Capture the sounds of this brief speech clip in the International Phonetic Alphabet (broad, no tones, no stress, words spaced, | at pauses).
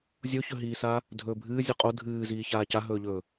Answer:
zʲoçɵɦiːsaː | dʱɵːbʱɨː zʲoqʼo dʱɨːziː çaːcaɦɵːʎɵː